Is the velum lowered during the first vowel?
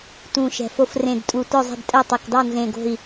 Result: yes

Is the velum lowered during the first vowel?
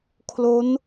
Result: no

